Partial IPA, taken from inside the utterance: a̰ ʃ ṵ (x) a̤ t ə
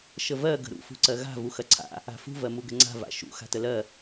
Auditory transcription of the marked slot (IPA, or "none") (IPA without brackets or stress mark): x